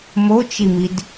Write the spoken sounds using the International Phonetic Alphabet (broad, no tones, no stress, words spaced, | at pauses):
mot͡ʃimid